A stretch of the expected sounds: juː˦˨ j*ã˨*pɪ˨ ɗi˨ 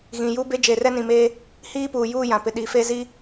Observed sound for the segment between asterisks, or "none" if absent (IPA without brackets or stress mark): ã˨